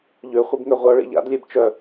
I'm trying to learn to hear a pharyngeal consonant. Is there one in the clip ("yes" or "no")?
no